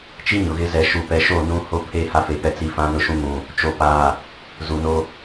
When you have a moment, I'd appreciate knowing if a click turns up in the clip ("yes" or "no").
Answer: no